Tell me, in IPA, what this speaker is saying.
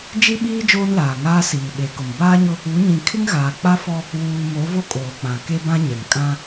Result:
d͡ʒ i˦ ɓ iː˦ d͡ʒ oː˦ n l aː˨ ŋ aː˦ s iː˨ ɓ e˨˦ k ʊ˨ m b aː˦ ɲ ʊ˦ | u˨˦ ɲ ĩ˨ kʰ ɪ˦ ŋ ɣ aː˨ k͡p a˦ f ɔ˦ | w uː˨ m o˨˦ v o˦ kʼ oː˨ k͡p ã˨ k e˦ b ã˦ ɲ ɛ˨ ŋ kʼ ã˦

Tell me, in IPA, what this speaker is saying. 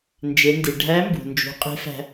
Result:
n d͡ʒ e˩˧ n d i˩ ɖʱ æ˧˥ m b ṳ˩ n d͡ʒ ṳ˩˧ qʼ e̤˧˥ f æ̤˧

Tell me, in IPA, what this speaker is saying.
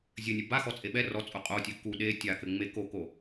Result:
zʲ ɘ nʲ ɨ b a x ɔ t͡sʼ e ɓ ɛ r ɔ t͡sʼ o qʼ o tʲ ɨ k u ɗ e tʲ a k ɘ ŋ͡m e k o k o

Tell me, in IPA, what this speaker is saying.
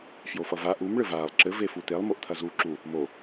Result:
f j o f ʌ v a ʔ u m ɭ ɘ v aː lˠ ǁ ɘ v e f u t̪ e lˠ m o ʔ t̪ʰ ɐ z uː ǁ u | m o

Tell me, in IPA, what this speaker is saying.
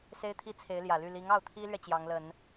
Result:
s e˥ ɪ̯ t̪ʰ i˥ t͡sʰ e˧˥ ɪ̯ l j ä˨˩ l y˥˩ l i˧˥ ŋ ɑ˥˩ ʊ̯ t̪ʰ i˥ l ɥ ɛ˨ t͡ɕ j ɑ˧˥ ŋ l ə˨˩˦ n

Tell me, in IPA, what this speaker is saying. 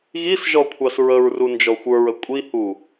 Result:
ɣ i s ʒ ɔ kʷʰ ɑ s ɹ ə ɹ r u n d͡ʒ ɔ xʷ ə˞ ɹ ə kʷʼ i h u

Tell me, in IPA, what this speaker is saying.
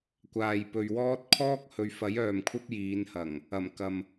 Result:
kʷ aː˨ j p ɵ˨ ɥ w ɔː˥ t̚ kʰ ɔː˥ k̚ h ɵ˨ ɥ f ɐ˨˥ j œː˨ m kʷʰ ɐ˥ p̚ j iː˨˧ n h ɐ˨˩ ŋ | ɐ˨˩ m k ɐ˨ m

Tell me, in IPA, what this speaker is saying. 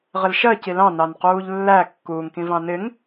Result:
ʁ ɪ l ʃ ɜ c i l ɑ̃ n ɑ n q uː ʎ lː æ kː uː ŋ k ĩ v ɑ̃ n ɪ ŋ

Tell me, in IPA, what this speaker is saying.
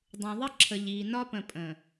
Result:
dˤ ũ˨ ðˤ ə˦ ǁʰ ə˨ ʎ iː˨ n ɒ˦ p ə̃˨ pʼ ə̃˨

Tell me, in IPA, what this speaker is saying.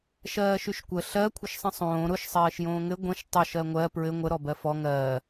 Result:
ʃ ɜː ʃ y ʃ kʷ ə ɬ ɜ kʷʰ ə ʃ sˤ ə̃ sˤ õː ɾ ʊ ʃ sˤ ɜː ʃ j õː ŋ ɘ ɡʷ ə̃ ʃ tˤ ʊ ʃ ɜ ŋʷ ɜ p ɹ ɘ ŋʷ ə ɾ ɔ b ɜ f ɔ ŋ ɜː

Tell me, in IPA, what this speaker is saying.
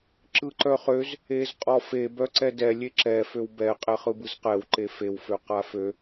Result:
ǁ ɯ ǃ œ χ ø z | e z qʼ ɔ f e b œ ǀ ɛ d ɛ lʲ e ǁ ɛ f ø w b ɛ qʼ ɛ χ ɯ b ɯ z q ɛ w ǃ e f e w f ø q a f ø

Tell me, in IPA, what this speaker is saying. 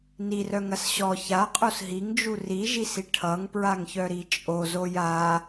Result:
n i r œ ŋ ɐ s ɕ ɔ ç a qʼ o s ɦ i ŋ d͡ʒ u r i ʒ i s i ʈʰ ʌ ŋ p ɹ a ŋ ç œ ɾ i t͡ʃʼ o z o j a

